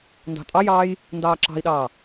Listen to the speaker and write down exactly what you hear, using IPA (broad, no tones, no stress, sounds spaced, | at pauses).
n d ɑ̤ tʼ ɑ j ɑː j | n d ɑː ǁ ɑ̤ i̯ ɗ ɑː